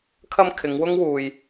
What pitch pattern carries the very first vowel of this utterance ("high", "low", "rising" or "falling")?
high